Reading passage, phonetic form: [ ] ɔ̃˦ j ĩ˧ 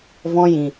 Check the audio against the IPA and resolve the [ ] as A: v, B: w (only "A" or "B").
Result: A